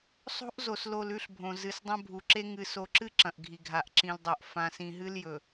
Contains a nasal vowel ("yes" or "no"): yes